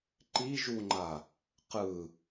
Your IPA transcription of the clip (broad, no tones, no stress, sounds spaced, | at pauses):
ǃ i ʒ u ŋ͡ǃ a | q ɯ